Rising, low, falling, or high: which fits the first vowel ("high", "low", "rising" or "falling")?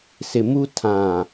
low